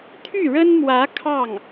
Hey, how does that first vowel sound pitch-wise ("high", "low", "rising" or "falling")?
falling